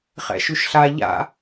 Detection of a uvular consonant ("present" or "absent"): present